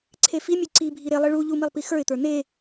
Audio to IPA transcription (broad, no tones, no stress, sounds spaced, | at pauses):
ǀʰ e f i mʲ ʉ ǀ i bʱ i ɾ e lˠ i ɭ u ʎ u m i lˠ p i x ə˞ ɪ̯ t̪ ə˞ n e